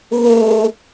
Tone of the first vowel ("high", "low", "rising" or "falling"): high